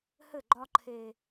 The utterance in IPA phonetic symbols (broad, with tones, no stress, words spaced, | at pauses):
hɘ˦˨ɡ͡ǃɒ˦ ǃʰe˦